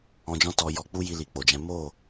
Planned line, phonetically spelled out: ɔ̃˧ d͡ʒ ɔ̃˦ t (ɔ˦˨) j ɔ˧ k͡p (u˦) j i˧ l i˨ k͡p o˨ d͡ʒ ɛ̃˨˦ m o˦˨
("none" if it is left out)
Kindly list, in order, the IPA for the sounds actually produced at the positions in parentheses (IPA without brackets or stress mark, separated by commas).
ɔ˧, u˦